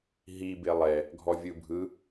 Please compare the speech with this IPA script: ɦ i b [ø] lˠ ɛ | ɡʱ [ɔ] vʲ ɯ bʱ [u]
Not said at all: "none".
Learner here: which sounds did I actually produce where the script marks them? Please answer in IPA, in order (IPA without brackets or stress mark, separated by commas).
e, ɔ, ɯ